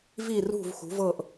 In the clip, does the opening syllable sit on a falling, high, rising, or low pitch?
falling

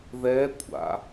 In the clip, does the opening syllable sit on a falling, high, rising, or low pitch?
rising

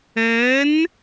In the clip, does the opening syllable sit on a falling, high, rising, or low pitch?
rising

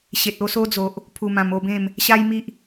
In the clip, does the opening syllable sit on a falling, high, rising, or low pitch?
low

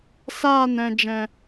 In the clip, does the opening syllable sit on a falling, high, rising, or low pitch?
falling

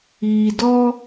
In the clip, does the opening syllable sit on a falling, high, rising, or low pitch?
low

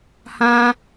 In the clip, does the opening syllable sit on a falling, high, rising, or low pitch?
high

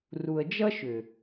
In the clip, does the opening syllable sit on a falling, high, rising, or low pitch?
low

